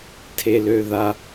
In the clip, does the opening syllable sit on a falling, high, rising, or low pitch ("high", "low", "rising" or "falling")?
high